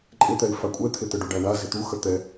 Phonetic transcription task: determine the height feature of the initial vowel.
high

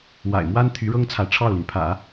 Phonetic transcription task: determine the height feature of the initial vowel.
low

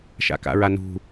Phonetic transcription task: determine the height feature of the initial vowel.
low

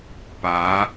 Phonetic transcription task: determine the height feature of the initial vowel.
low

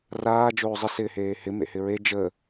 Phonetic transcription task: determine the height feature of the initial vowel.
low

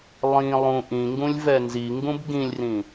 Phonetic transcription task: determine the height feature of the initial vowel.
high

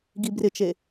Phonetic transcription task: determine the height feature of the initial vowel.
high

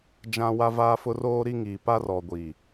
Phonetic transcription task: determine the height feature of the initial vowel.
low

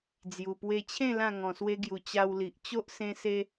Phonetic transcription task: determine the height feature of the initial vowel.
high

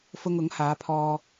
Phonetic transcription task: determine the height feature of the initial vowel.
high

